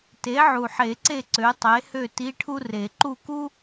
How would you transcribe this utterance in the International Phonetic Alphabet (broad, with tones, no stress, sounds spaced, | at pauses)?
t e˩˥ ʕ u˨˩ ħ e˨˩˦ ǀ e˦˨ ǀ ø˩˥ tˤ e˩˥ h ø˦˨ t i˧˥˧ ʈʰ u˥ r e˨˩˦ ǃ u˦˨ k u˥